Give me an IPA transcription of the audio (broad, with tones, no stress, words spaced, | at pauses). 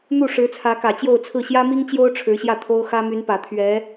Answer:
n̪u˥˩ʂɻ̩˧˥t͡sʰä˧˥kä˨˩ t͡ɕjo˥˧ʊ̯t͡sʰɹ̩˥˩ ɕjä˥mi˥ŋt͡ɕjo˥ʊ̯ ʈ͡ʂʰɻ̩˧˥ɕjä˥˩t̪ʰo˥ʊ̯ xä˥my˧˥npä˨˩ t̪ʰɥɛ˧˥